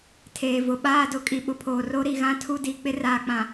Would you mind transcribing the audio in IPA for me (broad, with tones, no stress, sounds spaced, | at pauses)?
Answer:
tʰ eː˨ v ʊ˨ ɓ aː˦˨ d ʊ˨ kʼ i˨ ɓ ʊ˨ pʰ oː˨ r o˦ ɾ i˨ ɣ ã˦ tʰ u˦ d i˨ k͡p ɪ˦ r aː˨ k͡p ã˨